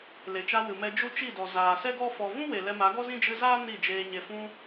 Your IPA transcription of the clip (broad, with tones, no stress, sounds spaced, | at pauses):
l e˨ t͡ʃ a˧ w ɨ˨ m ɛ˧ d͡ʒ u˦ t͡ʃ i˦˨ d ɔ˨ z aː˨ s ɛ˦ ɡ ɔ˦ f ɔ˧ v ũ˦ w e˨ l ɛ˧ m a˨˦ ɡ ɔ˦ z ĩ˦ d͡ʒ ɨ˧ z aː˦ n i˦˨ d͡ʒ eː˧ ɲ e˨ f ũ˧